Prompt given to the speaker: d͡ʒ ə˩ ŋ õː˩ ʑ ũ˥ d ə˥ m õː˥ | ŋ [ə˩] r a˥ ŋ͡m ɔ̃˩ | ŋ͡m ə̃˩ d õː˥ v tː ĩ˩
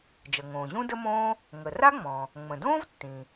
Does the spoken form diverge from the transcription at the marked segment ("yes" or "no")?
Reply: no